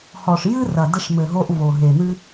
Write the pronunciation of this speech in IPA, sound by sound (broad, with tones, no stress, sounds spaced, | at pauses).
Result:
h ɔ˨ ʂ j ɨ˥ r ɐ˨ d ɘ˦ ʂ m ɘ˨ ɦ o˦ ʔ v o˨ ɦ e˨ n̪ ɨ˥